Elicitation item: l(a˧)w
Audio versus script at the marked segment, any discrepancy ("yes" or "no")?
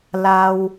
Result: no